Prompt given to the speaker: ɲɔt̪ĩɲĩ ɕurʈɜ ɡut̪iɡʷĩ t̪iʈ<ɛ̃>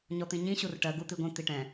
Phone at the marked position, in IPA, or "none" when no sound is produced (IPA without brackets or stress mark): ɛ̃